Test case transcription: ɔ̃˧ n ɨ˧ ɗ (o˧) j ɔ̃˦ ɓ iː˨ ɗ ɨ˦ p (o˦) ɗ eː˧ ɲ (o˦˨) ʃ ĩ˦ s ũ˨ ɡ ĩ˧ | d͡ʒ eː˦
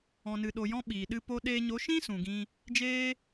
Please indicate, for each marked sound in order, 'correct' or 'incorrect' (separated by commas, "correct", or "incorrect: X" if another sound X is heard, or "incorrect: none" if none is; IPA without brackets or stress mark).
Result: correct, correct, incorrect: o˨˦